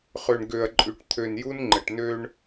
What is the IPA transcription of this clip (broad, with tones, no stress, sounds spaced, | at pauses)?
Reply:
χ ø˨ ɳ ɡ ø˨ ɐ̯ ǃʼ y˨ ʈ t̪ʰ ø˨ n j u˦ n ŋ͡ǃ ə˨ ʈ n ø˦ ɳ